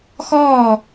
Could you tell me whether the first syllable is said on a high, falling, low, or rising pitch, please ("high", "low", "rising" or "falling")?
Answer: falling